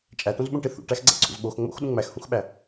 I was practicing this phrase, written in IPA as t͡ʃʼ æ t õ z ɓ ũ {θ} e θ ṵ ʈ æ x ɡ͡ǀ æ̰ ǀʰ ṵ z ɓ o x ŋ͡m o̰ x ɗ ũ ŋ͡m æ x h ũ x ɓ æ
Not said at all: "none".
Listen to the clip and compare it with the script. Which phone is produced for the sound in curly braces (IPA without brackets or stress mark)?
ʈ